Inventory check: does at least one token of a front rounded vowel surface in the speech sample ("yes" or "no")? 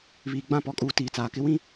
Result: no